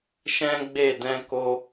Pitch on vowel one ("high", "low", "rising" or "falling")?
high